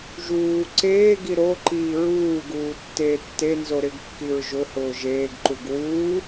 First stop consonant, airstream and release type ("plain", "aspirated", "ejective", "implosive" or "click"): click